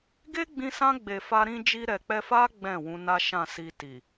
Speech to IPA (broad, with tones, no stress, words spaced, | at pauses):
ɡe˦ɡ͡bĩ˧sã˧ɡ͡be˨ fa˧ɾĩ˧ d͡ʒi˧ɾɛ˨k͡pɛ˧fa˦ ɡ͡bɛ̃˦˨wũ˧ na˦ʃã˦˨ si˧ti˨